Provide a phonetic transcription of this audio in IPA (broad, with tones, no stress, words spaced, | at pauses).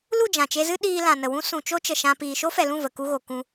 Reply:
lu˦˨d͡ʒã˨t͡ʃe˧zɨ˦ ɗiː˧lã˨nə˨wũ˦ sũ˨t͡ʃo˦ t͡ʃə˨ʃã˧ piː˨ʃo˦fɛ˨lũ˦˨ və˨ku˧ɣo˨ kũ˧